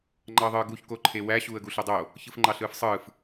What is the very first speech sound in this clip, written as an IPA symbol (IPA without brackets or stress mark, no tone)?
ŋ͡ǃ